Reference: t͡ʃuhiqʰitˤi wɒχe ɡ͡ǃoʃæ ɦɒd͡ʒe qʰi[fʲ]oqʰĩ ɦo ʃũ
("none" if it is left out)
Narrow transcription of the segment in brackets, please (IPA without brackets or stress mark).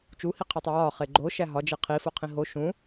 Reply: f